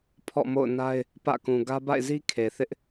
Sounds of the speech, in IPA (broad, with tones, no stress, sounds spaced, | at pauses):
pʰ ɔ̰˦˨ m o̰˦˨ ʊ̯ n a˦ ɪ̯ | p ä̰˦˨ k ũ˨ ɡ ä˦ b a̰˦˨ ɪ̯ z i˦ kʰ e˨ θ ɪ˦ ʔ